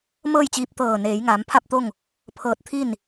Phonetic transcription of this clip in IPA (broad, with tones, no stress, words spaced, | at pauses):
mɤː˥˨jt͡ɕiː˧p̚ t̪ɤː˧˩ neː˩˧jŋaː˩˧mpʰa˥˨p̚t̪o˥˨ŋ | pʰɤː˧t̚t̪ʰi˥˨n